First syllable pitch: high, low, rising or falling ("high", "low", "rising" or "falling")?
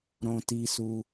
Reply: high